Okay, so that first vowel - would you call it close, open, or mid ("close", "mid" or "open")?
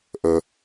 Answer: mid